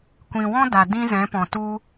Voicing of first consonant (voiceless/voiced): voiceless